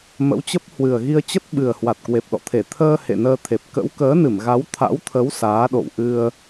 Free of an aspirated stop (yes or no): no